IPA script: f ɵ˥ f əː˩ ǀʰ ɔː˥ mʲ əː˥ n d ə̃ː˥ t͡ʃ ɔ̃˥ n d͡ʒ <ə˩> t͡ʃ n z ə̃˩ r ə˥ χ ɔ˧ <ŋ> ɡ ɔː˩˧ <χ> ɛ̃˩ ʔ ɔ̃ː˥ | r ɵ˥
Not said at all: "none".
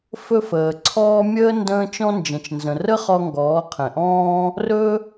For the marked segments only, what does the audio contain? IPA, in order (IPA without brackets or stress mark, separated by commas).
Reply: ə̃˩, ŋ, qʰ